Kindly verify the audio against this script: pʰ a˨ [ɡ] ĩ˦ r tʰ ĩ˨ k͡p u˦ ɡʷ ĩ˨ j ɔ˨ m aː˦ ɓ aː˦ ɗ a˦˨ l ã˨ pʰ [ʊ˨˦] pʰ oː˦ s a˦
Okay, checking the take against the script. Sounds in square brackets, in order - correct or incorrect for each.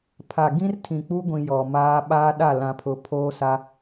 correct, correct

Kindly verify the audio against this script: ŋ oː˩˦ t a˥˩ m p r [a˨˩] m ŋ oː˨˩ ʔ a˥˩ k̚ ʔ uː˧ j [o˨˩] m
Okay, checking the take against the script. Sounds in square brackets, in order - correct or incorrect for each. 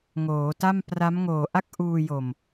incorrect: a˦˥, correct

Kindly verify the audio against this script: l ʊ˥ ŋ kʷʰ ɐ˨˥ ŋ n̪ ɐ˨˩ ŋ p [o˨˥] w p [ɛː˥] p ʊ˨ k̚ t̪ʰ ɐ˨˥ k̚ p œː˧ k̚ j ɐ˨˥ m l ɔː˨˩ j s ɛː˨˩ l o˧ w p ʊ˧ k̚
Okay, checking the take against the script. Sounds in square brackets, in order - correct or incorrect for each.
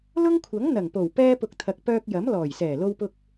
incorrect: o˨˩, incorrect: ɛː˧

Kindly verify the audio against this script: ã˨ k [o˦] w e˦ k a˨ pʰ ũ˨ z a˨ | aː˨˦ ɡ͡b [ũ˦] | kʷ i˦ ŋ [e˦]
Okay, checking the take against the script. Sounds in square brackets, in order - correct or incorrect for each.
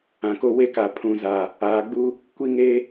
correct, incorrect: u˦, correct

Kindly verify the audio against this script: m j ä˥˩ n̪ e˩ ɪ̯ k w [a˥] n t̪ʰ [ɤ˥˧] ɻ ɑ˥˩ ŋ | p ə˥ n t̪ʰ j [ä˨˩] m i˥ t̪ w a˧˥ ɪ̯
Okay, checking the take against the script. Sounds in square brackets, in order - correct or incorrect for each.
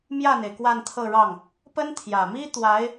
incorrect: a˥˧, correct, correct

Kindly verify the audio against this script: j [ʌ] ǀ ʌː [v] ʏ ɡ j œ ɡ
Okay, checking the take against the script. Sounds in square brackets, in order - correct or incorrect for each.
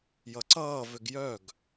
correct, correct

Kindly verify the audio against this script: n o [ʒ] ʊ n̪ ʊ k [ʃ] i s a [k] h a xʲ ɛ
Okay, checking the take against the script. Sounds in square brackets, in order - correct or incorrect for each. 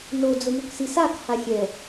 incorrect: d͡z, incorrect: s, correct

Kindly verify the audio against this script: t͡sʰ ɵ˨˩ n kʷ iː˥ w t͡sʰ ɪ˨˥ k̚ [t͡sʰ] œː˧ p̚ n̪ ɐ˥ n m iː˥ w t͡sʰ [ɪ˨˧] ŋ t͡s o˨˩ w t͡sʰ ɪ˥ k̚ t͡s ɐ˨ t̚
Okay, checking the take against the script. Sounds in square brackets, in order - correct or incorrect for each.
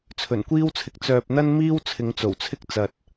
incorrect: t͡s, correct

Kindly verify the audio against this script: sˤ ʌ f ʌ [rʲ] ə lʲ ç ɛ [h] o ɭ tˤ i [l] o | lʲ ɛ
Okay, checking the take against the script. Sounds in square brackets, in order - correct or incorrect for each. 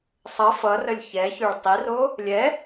incorrect: r, incorrect: ç, incorrect: r

